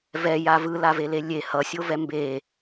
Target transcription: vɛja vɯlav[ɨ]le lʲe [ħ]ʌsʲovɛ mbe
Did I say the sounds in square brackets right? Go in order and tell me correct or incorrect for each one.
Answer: incorrect: e, incorrect: h

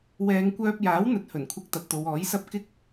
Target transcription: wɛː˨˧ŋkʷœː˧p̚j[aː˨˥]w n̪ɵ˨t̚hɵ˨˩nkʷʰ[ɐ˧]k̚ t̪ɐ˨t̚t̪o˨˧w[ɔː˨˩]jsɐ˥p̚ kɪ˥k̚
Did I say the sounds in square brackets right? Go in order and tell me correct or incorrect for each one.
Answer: correct, correct, incorrect: ɔː˨˥

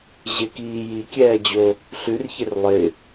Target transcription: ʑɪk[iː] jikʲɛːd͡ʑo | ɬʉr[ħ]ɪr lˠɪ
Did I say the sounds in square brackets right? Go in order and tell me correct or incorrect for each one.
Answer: correct, incorrect: ç

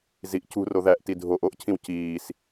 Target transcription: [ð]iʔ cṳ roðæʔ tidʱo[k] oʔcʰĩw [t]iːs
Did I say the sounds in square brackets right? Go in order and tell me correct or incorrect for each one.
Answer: incorrect: z, incorrect: ʔ, incorrect: c

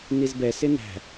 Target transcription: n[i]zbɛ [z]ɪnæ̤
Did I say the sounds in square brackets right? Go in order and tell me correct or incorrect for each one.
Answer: correct, incorrect: s

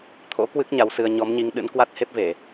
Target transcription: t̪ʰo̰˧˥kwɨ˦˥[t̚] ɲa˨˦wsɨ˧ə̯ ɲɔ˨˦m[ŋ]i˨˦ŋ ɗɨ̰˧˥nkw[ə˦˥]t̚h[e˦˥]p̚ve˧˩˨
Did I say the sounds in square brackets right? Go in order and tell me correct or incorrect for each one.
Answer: incorrect: k̚, incorrect: ɲ, incorrect: a˦˥, correct

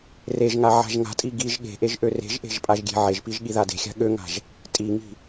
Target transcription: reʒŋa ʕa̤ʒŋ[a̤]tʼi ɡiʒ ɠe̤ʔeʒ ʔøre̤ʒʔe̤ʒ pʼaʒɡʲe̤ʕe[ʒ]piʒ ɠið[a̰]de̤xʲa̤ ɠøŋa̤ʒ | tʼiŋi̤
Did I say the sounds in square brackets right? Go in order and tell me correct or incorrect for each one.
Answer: correct, correct, incorrect: a

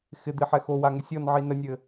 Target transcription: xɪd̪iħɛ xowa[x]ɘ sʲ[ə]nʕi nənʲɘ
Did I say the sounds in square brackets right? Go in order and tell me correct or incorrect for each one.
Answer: incorrect: ŋ, incorrect: ɔ

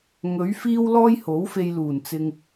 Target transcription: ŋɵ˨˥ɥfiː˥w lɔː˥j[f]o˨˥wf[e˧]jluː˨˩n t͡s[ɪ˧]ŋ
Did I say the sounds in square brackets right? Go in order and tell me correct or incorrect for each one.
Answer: incorrect: h, correct, correct

